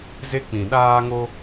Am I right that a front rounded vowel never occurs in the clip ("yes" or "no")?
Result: yes